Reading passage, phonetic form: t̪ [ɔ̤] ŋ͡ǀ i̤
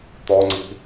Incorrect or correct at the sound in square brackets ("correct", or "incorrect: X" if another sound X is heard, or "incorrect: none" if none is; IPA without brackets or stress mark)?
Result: incorrect: ɔ